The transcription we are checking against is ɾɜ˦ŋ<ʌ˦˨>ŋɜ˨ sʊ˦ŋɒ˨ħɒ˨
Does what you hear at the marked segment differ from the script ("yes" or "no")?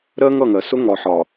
no